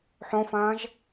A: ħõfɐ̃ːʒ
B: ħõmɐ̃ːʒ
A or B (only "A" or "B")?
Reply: A